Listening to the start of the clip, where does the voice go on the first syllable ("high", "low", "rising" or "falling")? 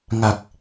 low